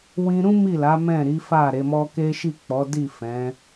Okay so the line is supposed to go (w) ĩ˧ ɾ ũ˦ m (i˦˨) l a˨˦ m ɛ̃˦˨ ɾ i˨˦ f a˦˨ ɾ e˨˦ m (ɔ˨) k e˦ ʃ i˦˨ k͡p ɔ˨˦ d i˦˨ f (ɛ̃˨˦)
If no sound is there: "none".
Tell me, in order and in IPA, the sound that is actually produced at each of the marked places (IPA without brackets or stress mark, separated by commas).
w, i˦˨, ɔ˦, ɛ̃˨˦